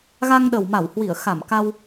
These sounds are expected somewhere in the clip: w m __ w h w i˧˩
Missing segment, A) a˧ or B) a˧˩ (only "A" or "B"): B